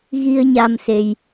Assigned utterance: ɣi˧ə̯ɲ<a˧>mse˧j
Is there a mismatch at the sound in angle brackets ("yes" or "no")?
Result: no